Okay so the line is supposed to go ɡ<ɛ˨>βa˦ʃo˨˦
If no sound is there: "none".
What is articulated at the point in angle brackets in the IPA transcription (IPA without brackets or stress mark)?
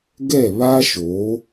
ɛ˦˨